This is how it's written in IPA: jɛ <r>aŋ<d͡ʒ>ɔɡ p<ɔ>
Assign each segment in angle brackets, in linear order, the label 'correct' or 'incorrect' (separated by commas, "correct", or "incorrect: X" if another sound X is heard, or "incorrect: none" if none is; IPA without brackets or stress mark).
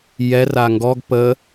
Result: correct, incorrect: ɡ, incorrect: ə